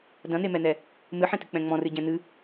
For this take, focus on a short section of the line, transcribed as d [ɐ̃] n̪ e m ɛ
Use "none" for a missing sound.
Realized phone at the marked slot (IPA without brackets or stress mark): ɐ̃